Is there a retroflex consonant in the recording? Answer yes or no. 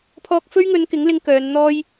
no